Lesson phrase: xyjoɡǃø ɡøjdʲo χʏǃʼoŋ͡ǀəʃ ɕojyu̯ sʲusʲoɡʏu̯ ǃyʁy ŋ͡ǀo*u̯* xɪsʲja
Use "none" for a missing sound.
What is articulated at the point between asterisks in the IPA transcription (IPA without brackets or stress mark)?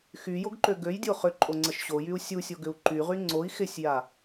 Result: i̯